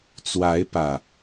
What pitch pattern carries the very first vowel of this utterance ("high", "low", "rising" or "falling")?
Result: rising